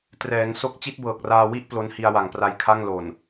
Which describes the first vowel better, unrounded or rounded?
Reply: unrounded